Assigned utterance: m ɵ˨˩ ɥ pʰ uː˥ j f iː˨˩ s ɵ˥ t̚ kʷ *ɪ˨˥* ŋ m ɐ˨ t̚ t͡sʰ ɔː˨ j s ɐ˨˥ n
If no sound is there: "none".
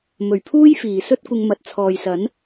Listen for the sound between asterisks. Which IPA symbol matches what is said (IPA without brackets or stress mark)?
ɪ˧